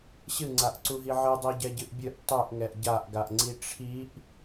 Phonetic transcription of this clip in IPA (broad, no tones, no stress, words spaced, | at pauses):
ɕɨŋ͡ǀaʔǀuɦi ʕɨdˤuɟɛɟɨʔ bʲɨʔ tˤuʔŋɛʔ ɟaʔɡaʔŋ͡ǀi ʈ͡ʂʰiʔ